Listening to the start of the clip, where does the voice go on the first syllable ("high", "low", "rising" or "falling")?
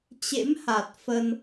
rising